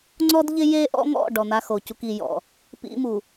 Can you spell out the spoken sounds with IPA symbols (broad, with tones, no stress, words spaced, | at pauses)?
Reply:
ŋ͡ǀɔ˦dʎɪ˦ je˦ʔɔ̰˦ŋɔ̰˦˨ ɖɔ˨n̪a˦xo˨cu˦k i˨jɔ̰˨ | pḭ˦mu˨